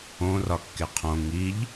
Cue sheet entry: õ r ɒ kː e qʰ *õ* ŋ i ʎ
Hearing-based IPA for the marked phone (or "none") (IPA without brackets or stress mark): õ